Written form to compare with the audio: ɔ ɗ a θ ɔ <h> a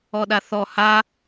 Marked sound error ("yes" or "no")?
no